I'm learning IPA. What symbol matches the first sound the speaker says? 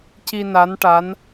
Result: c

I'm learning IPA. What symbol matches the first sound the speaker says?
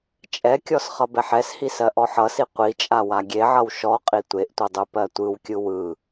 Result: t͡ʃʼ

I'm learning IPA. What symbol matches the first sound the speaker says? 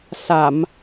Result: s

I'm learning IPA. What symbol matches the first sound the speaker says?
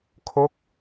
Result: kʰ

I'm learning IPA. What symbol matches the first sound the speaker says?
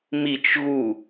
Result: m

